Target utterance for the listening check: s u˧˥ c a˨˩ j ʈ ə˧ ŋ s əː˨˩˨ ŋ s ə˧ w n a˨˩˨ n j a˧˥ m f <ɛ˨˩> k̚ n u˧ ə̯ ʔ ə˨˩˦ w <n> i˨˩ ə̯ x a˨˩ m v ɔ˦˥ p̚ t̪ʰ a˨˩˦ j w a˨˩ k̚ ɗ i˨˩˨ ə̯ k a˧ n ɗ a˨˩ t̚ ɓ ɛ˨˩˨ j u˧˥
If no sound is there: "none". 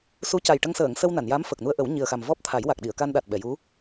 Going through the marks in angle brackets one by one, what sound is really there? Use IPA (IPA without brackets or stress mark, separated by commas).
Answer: ə˨˩, ɲ